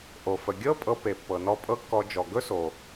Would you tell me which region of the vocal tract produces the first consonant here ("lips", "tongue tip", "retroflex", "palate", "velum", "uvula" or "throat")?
throat